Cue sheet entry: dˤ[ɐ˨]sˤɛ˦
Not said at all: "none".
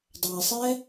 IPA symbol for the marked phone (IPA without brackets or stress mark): a˨